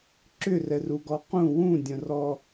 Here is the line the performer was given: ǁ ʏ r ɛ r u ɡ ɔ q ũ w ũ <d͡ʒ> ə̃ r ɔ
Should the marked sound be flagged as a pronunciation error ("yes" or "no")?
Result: yes